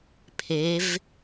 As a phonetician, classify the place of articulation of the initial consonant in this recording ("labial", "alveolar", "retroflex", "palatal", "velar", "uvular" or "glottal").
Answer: labial